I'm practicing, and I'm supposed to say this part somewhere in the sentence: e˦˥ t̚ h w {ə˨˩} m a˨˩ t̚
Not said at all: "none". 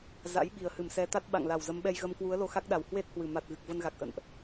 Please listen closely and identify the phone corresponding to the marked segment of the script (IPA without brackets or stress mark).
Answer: ɨ˨˩